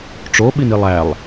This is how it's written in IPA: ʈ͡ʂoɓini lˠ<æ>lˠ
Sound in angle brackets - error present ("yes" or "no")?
no